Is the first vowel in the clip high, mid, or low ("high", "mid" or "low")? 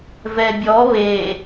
mid